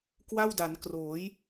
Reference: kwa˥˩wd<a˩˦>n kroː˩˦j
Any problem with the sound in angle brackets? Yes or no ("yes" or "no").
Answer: no